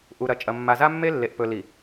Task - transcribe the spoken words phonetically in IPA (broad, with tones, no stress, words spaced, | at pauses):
ʔu˨ɾɐ˨ t͡ʃʼɐ˨mːa˨za˦ mːe˦ lːe˨ʔpɵ˨li˨